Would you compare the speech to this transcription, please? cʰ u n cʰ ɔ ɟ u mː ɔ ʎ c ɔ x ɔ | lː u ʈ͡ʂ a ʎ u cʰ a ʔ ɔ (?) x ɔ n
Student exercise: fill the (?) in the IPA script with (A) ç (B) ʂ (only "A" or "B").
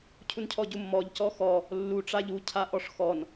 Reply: B